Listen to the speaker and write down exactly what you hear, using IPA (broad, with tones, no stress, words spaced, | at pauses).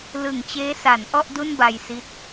lɯ˨˩ŋt͡ɕeː˦˥sa˩˦n ʔɔ˥˩ʔdu˥˩nba˧jsi˦˥t̚